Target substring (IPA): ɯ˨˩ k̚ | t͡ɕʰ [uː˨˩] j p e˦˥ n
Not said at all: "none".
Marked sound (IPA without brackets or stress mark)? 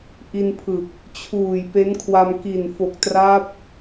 uː˨˩